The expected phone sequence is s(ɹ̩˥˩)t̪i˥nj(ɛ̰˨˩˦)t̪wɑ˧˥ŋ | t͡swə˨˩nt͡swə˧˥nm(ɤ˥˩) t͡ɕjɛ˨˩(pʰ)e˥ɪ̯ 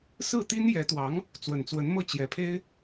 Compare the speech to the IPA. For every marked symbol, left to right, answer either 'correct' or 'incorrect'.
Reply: correct, incorrect: ɛ˧˥, correct, correct

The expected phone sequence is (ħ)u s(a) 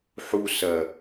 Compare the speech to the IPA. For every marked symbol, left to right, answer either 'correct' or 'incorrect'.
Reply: correct, incorrect: ɐ

